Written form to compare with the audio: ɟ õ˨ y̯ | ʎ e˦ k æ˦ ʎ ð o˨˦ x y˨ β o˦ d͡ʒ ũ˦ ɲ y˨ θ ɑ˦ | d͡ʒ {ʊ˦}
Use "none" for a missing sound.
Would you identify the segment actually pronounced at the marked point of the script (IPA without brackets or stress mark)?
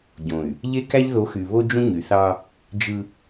ɯ˦